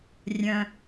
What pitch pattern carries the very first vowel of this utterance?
low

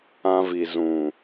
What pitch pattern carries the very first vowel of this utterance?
high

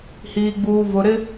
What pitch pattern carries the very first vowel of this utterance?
low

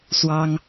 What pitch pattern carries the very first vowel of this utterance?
high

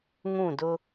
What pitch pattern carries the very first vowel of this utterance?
falling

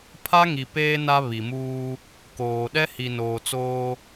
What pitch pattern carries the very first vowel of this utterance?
high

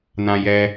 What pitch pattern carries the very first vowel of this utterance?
high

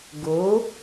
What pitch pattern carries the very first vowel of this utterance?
rising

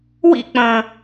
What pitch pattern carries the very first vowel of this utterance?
falling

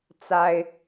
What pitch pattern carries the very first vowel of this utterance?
high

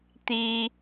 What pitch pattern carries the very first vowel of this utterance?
high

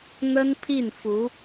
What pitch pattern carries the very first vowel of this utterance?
high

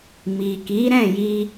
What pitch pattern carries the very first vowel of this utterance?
low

